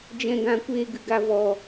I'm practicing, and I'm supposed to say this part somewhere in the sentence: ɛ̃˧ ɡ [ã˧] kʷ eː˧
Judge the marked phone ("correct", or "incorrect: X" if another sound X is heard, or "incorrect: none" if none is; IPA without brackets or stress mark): correct